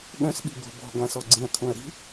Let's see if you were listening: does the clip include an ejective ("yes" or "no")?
no